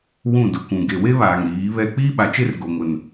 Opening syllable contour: falling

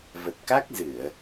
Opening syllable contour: low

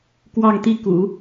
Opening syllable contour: falling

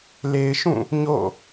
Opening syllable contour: low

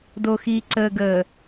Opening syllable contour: low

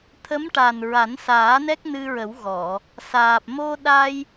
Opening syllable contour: rising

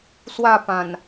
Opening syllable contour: falling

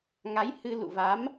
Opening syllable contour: rising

